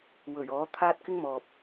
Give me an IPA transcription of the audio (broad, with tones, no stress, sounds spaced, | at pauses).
w ɵ˨˩ ɥ ɔː˨˥ t̪ʰ aː˥ t̚ k ɪ˥ ŋ m ɔː˨ p̚